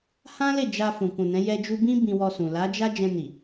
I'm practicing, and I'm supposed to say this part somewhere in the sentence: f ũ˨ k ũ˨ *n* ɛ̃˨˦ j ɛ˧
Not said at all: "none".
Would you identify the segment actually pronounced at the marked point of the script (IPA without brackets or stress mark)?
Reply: n